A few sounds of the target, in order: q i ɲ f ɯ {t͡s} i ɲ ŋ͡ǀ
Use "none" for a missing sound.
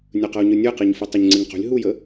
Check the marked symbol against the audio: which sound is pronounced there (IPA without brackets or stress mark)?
tˤ